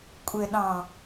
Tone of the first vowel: low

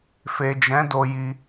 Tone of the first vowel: low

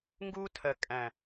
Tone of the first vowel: high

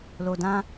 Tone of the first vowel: low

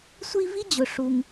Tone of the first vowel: high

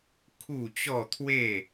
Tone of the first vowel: falling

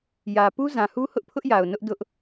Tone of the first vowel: low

